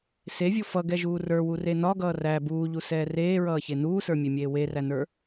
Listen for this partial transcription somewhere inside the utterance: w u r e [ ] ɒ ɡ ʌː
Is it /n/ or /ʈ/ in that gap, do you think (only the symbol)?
n